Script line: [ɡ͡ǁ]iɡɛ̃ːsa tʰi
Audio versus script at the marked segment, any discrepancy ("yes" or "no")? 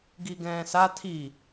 yes